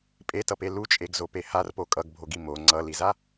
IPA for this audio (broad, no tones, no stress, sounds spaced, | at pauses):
pʼ e t ʌ p e l u t͡ʃʼ e ɡ z o p e h a r p o kʼ ʌ ɡ bʱ o ɡ i m o ŋ͡ǀ ʌ l i z a